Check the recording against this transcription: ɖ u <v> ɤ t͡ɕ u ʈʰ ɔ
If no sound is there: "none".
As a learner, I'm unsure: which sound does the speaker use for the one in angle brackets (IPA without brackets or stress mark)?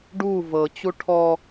v